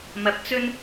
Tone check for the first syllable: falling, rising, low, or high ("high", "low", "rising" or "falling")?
low